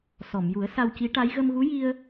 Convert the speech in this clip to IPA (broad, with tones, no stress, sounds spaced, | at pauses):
s ɔ˨˩˨ m j u˨˩˦ ə̯ s a˧ w c i˧˥ ʈ a˧˥ j ɣ ə˧ m ɣ u˧˥ j i˧ ə̯